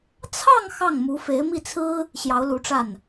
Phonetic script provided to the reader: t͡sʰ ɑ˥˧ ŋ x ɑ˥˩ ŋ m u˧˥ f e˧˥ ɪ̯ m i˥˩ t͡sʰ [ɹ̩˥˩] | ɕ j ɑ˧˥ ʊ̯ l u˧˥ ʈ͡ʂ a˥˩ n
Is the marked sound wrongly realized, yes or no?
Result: yes